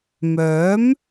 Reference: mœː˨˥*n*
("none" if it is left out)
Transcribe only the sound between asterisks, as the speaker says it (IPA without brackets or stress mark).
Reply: m